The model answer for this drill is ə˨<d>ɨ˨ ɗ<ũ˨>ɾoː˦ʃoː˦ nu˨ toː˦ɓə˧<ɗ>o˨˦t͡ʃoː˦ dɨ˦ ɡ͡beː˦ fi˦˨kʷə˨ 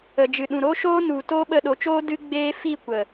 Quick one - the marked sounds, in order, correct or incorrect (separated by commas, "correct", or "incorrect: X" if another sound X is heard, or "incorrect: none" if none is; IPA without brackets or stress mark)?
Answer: incorrect: d͡ʒ, correct, correct